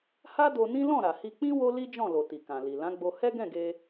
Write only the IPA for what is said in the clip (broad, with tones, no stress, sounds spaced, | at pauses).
h a˦ d o˧ n ĩ˦ l ɔ̃˦˨ ɾ a˨ h i˧ k͡p ĩ˦ w o˦ l i˦ d͡ʒ ɔ̃˦˨ l o˨ t i˨ k ã˨ l i˨ l ã˨˦ ɡ͡b o˧ h ɛ˦ ɡ ɛ̃˦˨ ɡ e˧